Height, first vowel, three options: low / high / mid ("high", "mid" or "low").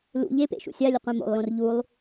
high